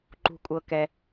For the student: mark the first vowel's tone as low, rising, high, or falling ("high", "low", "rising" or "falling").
low